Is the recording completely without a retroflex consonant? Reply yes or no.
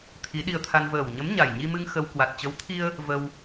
yes